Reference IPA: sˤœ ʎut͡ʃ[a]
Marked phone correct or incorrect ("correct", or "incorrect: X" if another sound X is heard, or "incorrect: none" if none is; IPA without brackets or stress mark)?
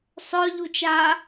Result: correct